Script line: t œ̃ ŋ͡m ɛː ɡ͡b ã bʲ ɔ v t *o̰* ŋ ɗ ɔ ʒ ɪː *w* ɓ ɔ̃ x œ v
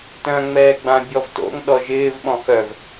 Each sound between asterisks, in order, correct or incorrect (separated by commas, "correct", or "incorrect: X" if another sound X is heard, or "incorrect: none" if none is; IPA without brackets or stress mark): correct, incorrect: v